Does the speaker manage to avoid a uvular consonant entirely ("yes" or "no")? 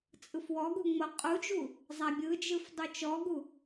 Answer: no